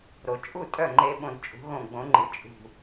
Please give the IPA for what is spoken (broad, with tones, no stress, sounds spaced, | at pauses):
ɾ o˩ t͡ʃʼ u˥˩ tʼ œ˥˩ ŋ͡ǃ e˧ ɓ õ˧˩ d t͡ʃʼ ṳ˩˥ ɣ õ˧˩ ɡ͡b õ˩˥ ŋ͡ǃ ɯ˩ t͡ʃʼ ṳ˧˩